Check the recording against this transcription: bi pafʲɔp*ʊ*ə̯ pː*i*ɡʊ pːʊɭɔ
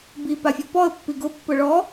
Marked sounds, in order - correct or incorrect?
incorrect, correct

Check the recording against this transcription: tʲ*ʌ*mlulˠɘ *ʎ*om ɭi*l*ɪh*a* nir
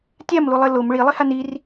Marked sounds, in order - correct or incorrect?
incorrect, incorrect, incorrect, correct

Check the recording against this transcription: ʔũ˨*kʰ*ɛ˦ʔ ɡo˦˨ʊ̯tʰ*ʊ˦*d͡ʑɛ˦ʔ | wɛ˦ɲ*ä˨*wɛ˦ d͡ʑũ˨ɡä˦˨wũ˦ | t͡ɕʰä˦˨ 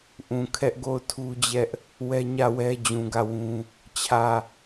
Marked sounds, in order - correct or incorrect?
correct, incorrect, incorrect

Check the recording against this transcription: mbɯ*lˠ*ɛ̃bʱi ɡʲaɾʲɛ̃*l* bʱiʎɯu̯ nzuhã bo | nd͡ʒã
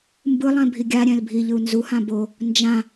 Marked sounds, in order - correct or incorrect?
correct, correct

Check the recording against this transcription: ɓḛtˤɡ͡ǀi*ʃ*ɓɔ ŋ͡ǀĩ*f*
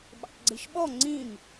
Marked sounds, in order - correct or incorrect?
correct, incorrect

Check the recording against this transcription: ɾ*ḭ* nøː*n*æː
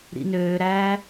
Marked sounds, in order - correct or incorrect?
correct, incorrect

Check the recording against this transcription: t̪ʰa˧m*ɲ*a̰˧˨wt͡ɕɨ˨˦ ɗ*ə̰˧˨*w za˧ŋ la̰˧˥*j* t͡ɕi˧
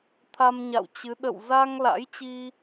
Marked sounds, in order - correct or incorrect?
correct, correct, correct

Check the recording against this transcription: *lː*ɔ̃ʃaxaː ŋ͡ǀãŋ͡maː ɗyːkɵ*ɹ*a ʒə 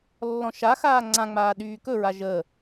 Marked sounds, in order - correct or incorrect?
correct, correct

